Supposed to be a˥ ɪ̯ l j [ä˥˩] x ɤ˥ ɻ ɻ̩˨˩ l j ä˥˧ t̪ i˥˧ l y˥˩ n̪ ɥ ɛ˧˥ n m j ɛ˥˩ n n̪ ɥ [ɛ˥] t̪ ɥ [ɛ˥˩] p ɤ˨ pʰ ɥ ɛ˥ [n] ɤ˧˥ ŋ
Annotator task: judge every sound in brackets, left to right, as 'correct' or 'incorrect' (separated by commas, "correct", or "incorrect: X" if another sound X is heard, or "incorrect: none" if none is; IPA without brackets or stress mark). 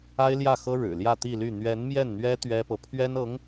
correct, correct, incorrect: ɛ˥, correct